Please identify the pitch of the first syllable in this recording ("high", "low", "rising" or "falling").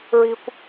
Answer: high